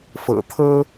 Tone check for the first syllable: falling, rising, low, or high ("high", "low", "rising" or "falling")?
low